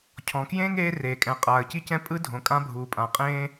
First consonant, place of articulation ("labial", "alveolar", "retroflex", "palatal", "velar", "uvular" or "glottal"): palatal